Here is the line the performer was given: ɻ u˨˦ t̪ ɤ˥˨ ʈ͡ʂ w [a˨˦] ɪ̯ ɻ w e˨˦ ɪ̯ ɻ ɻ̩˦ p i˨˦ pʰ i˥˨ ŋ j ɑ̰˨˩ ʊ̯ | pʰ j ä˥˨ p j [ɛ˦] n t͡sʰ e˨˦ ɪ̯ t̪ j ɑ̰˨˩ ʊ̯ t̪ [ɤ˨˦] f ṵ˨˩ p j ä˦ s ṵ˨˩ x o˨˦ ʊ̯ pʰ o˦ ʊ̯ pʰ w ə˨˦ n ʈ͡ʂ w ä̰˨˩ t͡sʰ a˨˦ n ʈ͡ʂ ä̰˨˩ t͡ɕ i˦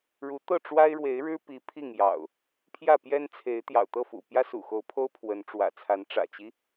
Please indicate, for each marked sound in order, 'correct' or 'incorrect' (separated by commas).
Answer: incorrect, correct, incorrect